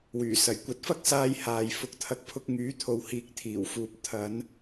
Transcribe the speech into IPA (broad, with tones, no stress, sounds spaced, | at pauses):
w yː˨˩ s ɐ˨˩ j kʷ ɐ˨˥ t̚ f ɐ˥ k̚ s aː˧ j h aː˨ j f ʊ˨˥ k̚ t̪ʰ ɐ˨ k̚ pʰ ʊ˧ k̚ ŋ yː˨˥ t̪ʰ o˨ w h iː˨ k̚ t̪ʰ iː˨˩ w f uː˨ p̚ t̪ʰ ɐ˨˧ n